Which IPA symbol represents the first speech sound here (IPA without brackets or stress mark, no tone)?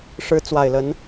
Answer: ʂ